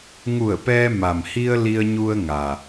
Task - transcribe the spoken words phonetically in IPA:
ŋu˧˩ə̯pɛː˧ ma˩mhi˧ə̯ li˧ə̯ɲu˧ə̯ ŋa˩

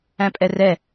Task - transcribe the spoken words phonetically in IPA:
æ̃pʼɛrɛ

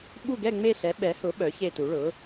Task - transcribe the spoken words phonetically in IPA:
ɓu˥˨ɡɛ˥˨ŋ͡me˥˨ɬɛ˩˥ ɓɛ˩˥hʊ˩˥ ɓœ˩˥çe˥˨tu˩˥ ɭʊ˩˥

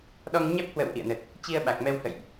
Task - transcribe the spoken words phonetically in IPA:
ɗɔ˧ŋɲɛ˦˥p̚hwə̰˧˨w ʔḭ˧˨ə̯nə˨˩t̚ | t͡ɕi˧ə̯ ɓa˨˩k̚mɛ˧whə̰˧˨jʔ

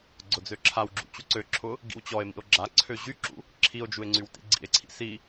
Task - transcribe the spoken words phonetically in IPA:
ɡ͡ǀʊd͡zøǁʰawɡ͡ǁṵ t͡ɕuǀøǁʰʊ | ɡḭwt͡ɕɔe̯mḭo̯ ɡ͡ǁaǀʰø ʑyǁṵ | ǁʰio̯d͡ʒue̯ ŋ͡ǀywtḭɡ͡ǀḭe̯ǀʰḭ si

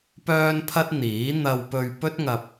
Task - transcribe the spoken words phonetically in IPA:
pœː˥npʰɐ˥t̚n̪iː˨˥ n̪ɐ˧wpɵ˧ɥ pɵ˥t̚ŋɐ˧p̚

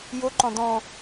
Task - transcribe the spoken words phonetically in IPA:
jʊǃɔ̃ dɔ̃

